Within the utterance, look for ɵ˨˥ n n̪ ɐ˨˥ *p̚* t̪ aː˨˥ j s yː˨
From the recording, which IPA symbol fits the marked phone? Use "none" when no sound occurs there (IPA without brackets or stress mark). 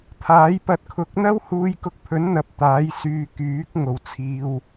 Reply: p̚